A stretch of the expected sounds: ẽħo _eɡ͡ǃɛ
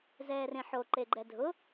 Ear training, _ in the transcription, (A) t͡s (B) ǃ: B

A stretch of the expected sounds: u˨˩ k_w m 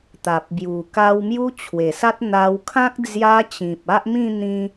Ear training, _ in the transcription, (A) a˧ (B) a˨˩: A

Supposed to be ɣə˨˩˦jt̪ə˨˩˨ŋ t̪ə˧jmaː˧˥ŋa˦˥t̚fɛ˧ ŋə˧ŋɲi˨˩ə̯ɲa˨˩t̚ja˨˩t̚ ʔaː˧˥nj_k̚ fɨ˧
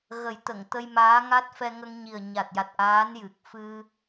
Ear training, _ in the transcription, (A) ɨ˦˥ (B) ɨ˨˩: B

